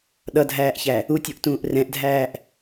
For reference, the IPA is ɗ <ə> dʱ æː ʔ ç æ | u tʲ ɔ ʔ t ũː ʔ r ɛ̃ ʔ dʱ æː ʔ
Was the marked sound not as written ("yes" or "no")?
yes